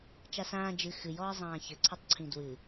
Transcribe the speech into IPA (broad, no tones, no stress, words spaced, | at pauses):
t͡ʃasãː d͡ʒɨ xɨjɔɐ̯ zˤãːçɘǀʰɘtˤǀʰĩ dwɨ